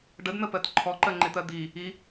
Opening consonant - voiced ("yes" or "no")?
yes